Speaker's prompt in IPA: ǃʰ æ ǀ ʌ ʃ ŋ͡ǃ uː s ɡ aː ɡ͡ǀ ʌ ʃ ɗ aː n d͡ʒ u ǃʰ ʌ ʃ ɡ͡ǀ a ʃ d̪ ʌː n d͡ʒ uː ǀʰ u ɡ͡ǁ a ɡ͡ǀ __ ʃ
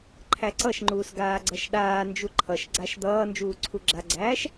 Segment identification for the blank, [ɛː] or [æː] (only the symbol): æː